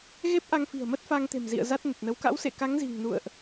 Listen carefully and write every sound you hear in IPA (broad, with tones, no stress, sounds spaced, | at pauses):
ɣ e˦˥ p̚ ʔ a˧ ŋ f i̤˨˩ ə̯ m ə˦˥ t̚ f a˧ ŋ t̪ e̤˨˩ m z ḭ˧˨ ə̯ z a˦˥ t̚ n ə˨˩ t̚ n ə˨˦ w k a̰˧˥ w s ḛ˧˨ k a˨˦ ŋ z i̤˨˩ ŋ n ṵ˧˨ ə̯ ʔ